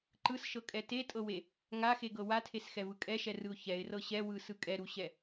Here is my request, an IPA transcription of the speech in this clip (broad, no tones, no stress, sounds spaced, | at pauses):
ǃ ɯ s ʃ ɤ kʼ ɛ t e tʼ ɤ w e | ŋ a x e ɡ ɤ w a tʰ e s x ɛ v ɯ kʼ ɛ ʃ ɛ r ɯ ʊ̯ ç ɛ ɪ̯ r ɤ ɕ ɛ w ɯ s ɯ kʼ ɛ ɾ u ɕ ɛ